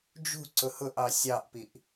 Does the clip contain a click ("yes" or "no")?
yes